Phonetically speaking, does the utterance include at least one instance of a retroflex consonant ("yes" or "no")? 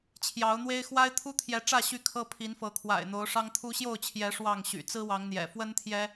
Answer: yes